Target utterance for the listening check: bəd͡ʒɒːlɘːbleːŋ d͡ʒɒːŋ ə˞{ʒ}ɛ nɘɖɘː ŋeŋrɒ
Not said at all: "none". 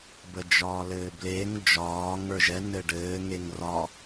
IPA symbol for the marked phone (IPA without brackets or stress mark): ʒ